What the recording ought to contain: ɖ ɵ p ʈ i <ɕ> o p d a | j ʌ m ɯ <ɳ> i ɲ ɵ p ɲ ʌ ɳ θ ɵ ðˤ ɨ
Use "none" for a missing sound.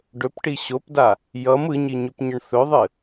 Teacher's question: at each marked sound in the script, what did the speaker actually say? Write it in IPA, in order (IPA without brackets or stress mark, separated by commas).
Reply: ɕ, ɲ